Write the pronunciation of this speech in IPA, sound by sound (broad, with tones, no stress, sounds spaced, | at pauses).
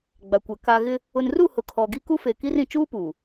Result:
ɡ͡b a˨ kʷ ɛ˨ k a˨ ɣ ɪ˦ | ʊ˨ n r u˦˨ h ʊ˨ kʰ ɔ˨ ɡ i˦ k u˦ f e˨ k i˦ r ĩ˨ t͡ʃ uː˦ p u˨